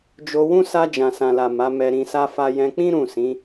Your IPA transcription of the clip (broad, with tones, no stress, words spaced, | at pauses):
d͡ʒo˧wũ˦ sa˧d͡ʒã˨ sã˨la˨ ma˨˦mɛ˧ɾĩ˧sa˦ fa˧jɛ̃˧k͡pĩ˦ ɾũ˦˨sĩ˨˦